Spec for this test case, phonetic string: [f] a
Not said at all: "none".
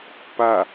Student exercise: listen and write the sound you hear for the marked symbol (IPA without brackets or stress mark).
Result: p